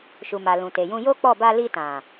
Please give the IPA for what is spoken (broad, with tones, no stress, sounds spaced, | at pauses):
ʃ u˨ m a˨ l ũ˨ t e˨ j ũ˧ j o˦ k͡p ɔ˦˨ b a˧ l i˧ t ã˨